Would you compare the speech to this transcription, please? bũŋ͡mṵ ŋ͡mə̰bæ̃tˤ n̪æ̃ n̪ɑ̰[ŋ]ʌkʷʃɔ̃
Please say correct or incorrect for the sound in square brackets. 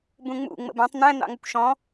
correct